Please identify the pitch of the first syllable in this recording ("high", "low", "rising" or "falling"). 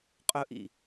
high